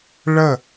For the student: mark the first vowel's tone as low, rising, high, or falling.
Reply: falling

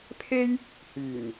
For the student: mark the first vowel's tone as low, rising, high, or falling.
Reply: high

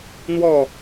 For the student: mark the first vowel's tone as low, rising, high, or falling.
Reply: falling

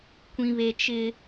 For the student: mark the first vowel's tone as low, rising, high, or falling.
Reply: high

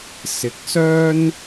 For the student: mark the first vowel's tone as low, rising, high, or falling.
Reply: rising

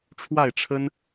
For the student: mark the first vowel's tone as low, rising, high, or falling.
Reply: falling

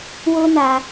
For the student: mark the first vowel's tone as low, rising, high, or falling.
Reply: high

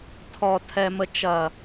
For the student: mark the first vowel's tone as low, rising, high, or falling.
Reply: low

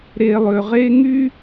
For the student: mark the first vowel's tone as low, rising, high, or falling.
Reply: low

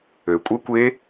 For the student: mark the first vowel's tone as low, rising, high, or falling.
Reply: low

